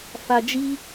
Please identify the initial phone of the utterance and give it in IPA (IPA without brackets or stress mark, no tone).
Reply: f